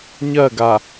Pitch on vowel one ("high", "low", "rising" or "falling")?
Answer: falling